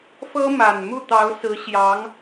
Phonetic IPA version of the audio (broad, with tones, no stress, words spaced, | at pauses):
fɤ˥ma˨˩n mu˥˩t̪ɑ˧˥ʊ̯sɹ̩˧˥ ɕjɑ˧˥ŋ